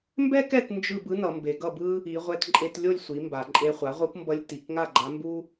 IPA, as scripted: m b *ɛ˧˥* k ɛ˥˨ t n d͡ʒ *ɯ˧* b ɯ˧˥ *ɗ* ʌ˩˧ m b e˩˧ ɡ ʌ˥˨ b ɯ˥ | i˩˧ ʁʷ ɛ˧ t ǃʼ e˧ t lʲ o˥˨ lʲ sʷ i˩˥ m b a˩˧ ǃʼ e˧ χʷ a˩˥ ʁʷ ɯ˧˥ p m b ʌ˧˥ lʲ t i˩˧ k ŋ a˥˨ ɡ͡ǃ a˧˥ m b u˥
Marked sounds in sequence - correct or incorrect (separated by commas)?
incorrect, incorrect, incorrect